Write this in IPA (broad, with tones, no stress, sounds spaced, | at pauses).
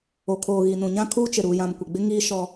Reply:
o˨ kʰ oː˨ ɣ i˨ n ũ˨ ɲ ã˦ kʰ uː˦ t͡ʃ ɪ˨ ɾ uː˨ j ã˨ m kʷ ɪ˨ ɡ͡b ɪ˦ ŋ iː˦ ʃ ɔ˦